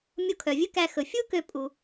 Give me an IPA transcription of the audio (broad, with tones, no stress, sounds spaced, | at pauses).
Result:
mʲ o˧ kʰ œ˩ vʲ ɵ˥ k æ˧ x ɵ˩ fʲ u˥ k ø˧ pʼ u˩